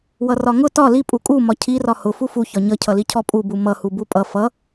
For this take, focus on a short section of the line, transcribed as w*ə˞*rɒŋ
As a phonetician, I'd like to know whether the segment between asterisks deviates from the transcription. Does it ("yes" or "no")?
yes